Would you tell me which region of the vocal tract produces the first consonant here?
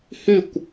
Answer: throat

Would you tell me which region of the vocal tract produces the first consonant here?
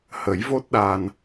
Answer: throat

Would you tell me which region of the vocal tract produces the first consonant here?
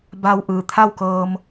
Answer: lips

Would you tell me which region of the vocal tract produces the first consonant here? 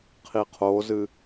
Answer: uvula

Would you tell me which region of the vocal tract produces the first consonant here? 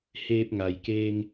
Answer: throat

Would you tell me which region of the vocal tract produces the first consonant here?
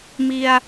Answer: lips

